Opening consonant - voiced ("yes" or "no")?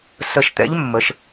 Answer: no